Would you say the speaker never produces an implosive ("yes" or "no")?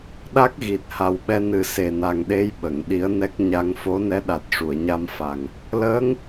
no